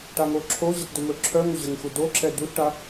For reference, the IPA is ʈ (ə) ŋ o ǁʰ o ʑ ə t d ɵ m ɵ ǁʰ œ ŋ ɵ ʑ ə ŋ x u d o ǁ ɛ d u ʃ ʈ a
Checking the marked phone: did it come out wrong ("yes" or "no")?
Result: yes